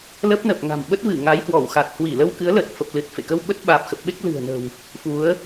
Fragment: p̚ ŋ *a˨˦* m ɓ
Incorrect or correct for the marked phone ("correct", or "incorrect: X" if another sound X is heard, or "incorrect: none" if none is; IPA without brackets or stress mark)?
incorrect: a̤˨˩